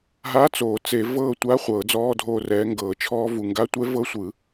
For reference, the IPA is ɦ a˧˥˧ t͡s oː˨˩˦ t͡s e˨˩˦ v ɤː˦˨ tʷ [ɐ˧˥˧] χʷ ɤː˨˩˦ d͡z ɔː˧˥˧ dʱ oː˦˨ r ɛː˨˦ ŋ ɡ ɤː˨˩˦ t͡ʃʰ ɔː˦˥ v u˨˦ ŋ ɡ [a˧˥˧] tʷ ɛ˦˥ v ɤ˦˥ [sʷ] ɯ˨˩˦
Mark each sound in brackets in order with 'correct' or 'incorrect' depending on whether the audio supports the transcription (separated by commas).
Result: incorrect, correct, correct